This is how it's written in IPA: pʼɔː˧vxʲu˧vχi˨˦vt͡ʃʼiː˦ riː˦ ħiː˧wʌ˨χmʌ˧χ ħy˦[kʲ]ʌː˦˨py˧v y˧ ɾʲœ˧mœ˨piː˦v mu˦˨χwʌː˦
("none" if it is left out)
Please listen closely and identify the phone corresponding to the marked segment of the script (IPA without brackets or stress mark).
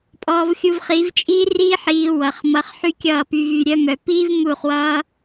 kʲ